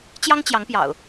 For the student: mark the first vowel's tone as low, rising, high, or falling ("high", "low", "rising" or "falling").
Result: high